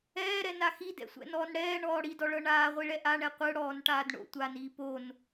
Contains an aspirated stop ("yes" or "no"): no